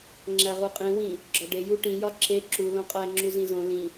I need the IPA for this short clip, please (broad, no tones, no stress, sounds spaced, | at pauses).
ŋ͡ǁ æ ʁ u qʼ ĩ w ĩ | ɡ͡ǁ ɒ ɖ e j u ʈ ĩ j ɒ ǁ e ǁ u l õ qʼ æ ŋ͡ǁ u z ĩ z õ l ĩ